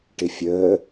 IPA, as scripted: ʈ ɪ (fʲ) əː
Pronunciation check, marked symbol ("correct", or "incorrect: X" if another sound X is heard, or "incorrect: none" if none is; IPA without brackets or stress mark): correct